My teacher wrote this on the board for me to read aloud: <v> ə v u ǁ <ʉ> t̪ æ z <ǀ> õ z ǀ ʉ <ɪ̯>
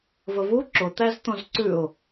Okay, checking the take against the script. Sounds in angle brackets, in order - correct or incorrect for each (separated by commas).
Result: correct, incorrect, incorrect, incorrect